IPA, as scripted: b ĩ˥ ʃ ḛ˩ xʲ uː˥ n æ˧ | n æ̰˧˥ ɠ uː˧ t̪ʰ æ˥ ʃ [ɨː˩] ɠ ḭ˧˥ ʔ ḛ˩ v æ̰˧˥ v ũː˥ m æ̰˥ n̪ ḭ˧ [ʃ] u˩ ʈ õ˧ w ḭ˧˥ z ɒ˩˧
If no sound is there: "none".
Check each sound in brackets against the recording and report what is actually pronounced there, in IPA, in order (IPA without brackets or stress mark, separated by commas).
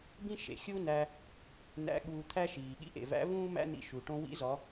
iː˩, ʃ